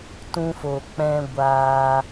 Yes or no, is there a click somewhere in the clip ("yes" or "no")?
no